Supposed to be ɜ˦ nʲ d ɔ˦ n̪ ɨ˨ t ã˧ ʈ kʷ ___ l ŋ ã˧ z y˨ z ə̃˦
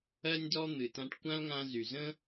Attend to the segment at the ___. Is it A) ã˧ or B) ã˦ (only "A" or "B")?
B